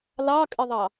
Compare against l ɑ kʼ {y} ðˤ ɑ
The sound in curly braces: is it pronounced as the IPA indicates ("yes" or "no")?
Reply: no